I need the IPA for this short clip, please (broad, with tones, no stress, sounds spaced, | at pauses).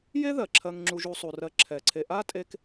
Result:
j e˥ ð ɜ˩ ǁʰ ɜ˨ ŋ ŋ͡ǁ u˨ ʒ u˨ sˤ u˩ r ɜ˨ ǁʰ ɛ˩ ǀʰ e˨ ʔ a˥ tʼ e˦ k